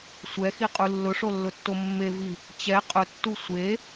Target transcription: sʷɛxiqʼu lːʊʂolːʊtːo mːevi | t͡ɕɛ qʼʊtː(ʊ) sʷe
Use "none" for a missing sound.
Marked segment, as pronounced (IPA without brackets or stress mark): u